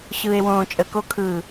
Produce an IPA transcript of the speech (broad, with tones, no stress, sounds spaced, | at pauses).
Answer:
ɕ ɯː˨ e̯ w õː˨ t͡ʃʼ ə˨ k o˦ kʰ ɯː˨